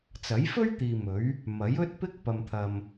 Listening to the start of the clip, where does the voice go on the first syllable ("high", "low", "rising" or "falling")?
rising